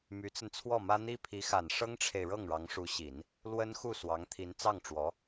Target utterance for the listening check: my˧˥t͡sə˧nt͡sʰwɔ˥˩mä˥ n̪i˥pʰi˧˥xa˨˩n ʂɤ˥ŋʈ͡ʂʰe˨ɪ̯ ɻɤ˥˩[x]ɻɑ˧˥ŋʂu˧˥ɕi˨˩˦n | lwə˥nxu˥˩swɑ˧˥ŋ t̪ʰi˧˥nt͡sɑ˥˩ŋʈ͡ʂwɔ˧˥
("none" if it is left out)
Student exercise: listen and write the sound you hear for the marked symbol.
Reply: ŋ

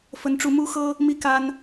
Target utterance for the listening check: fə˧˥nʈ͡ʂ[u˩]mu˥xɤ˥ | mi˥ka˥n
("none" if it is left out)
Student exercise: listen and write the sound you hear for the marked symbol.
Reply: u˧˥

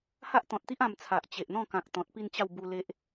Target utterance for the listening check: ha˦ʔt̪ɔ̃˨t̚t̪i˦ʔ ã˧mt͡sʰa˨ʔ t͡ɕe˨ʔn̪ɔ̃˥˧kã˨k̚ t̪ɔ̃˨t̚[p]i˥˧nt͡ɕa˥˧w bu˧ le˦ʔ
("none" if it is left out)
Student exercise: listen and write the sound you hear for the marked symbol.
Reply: p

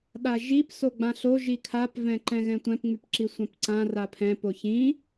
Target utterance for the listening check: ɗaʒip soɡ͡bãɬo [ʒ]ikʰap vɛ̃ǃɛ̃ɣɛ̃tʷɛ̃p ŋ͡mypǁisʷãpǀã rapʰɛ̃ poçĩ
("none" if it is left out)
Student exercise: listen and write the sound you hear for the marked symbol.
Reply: ʒ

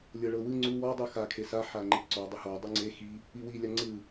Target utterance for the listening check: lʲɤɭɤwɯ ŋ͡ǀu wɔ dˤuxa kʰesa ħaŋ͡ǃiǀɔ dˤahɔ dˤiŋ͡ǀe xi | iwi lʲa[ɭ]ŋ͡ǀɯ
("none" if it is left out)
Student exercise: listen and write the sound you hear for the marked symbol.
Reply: none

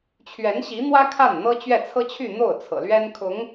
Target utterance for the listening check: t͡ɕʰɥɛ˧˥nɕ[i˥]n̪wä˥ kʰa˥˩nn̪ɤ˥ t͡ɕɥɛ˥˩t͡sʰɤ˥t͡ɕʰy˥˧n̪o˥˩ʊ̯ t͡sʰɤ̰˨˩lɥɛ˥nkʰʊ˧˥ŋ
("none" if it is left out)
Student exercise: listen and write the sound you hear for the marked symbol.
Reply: i˧˥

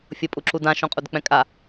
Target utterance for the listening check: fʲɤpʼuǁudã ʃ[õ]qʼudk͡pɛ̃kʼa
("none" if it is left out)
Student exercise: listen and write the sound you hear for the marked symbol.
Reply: õ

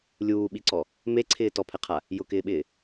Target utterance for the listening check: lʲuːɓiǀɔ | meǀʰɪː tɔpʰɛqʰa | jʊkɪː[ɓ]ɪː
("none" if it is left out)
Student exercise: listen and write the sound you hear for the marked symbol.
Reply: ɓ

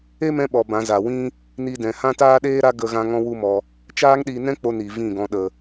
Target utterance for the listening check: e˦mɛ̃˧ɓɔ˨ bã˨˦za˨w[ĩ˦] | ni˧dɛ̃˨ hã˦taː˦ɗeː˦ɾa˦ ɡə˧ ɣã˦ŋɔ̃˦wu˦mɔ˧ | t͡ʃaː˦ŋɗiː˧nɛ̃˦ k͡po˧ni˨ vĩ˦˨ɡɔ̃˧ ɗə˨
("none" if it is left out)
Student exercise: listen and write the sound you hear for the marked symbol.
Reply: ĩ˦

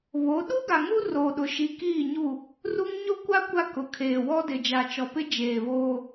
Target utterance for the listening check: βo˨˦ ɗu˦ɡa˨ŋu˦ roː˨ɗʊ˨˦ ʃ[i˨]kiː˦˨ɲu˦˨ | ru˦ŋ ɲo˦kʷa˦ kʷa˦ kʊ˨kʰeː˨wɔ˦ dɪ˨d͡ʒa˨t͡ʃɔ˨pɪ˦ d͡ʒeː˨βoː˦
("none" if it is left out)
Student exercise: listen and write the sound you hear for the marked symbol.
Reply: i˨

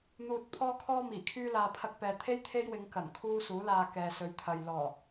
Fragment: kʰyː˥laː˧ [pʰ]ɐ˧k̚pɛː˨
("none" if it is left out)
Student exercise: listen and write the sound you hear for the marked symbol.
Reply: pʰ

